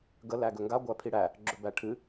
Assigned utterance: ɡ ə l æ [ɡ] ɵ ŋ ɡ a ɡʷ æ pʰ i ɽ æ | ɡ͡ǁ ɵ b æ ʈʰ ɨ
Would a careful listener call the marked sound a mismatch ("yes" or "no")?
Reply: no